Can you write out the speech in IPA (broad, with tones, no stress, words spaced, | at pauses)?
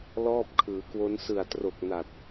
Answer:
lɔː˥˩p̚kʰɯː˩˦kwo˦˥n sɯ˨˩a̯tro˨˩k̚ na˨˩t̚